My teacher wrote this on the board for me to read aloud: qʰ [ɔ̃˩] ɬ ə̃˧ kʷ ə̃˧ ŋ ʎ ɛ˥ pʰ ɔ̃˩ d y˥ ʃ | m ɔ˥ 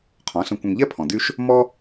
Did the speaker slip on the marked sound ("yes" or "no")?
yes